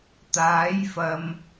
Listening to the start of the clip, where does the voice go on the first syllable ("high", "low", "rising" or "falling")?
rising